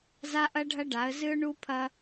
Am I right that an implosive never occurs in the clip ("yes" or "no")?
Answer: yes